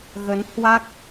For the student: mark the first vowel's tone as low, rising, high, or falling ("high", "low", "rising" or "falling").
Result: rising